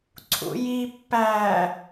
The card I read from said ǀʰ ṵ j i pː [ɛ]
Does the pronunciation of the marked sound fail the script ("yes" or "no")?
yes